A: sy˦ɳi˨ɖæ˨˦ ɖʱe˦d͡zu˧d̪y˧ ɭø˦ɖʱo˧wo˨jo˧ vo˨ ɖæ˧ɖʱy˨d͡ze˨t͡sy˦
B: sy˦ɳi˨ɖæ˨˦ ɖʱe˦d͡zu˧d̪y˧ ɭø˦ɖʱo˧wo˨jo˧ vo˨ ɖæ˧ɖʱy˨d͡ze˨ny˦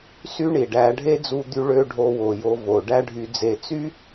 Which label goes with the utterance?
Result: A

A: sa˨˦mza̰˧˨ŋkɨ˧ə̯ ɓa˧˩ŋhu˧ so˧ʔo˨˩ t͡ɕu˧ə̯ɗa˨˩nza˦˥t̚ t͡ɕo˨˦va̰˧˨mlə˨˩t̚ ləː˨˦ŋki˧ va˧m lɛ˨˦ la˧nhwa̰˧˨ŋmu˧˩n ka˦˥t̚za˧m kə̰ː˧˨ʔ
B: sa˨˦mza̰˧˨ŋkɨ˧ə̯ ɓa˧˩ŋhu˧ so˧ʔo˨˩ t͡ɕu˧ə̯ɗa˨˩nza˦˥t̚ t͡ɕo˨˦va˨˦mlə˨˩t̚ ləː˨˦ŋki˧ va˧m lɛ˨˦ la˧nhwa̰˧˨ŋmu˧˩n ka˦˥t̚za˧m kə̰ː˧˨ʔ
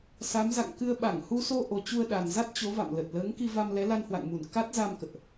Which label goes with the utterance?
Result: A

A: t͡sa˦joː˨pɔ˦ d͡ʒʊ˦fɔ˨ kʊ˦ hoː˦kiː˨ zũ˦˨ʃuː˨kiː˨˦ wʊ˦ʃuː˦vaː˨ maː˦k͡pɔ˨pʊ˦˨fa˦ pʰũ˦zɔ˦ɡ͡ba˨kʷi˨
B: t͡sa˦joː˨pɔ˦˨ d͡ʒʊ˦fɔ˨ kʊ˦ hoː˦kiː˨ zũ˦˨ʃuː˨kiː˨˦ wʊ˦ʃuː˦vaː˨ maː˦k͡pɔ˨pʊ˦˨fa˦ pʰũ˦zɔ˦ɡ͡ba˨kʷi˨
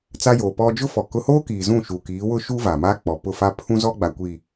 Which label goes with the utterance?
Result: A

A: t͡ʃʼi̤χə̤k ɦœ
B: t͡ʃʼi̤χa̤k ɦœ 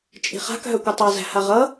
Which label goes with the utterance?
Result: B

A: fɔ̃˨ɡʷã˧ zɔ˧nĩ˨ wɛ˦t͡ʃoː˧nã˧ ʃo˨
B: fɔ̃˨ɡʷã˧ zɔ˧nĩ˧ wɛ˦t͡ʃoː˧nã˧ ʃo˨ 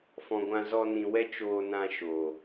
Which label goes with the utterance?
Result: A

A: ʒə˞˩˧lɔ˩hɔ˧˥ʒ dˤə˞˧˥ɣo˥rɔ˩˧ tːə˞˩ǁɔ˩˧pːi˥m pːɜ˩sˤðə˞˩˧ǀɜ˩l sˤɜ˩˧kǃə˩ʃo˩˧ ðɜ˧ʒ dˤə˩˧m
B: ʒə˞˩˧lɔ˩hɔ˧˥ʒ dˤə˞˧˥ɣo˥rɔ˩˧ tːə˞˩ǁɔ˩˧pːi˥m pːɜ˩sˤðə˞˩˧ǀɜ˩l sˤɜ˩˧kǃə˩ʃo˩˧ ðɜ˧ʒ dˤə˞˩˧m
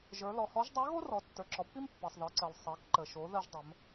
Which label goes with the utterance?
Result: A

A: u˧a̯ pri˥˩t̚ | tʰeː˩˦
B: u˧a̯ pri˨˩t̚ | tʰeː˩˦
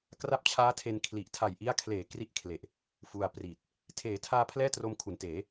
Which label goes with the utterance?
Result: B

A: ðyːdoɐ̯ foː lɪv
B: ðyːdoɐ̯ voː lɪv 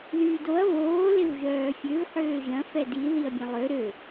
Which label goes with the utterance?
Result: B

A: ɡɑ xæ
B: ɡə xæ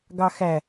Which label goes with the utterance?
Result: A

